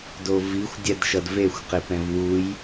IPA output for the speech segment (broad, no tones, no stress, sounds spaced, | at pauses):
d o v i xʷ dʲ ɛ d ʃ ʌ d v e xʷ q e p ɛ̃ v w u j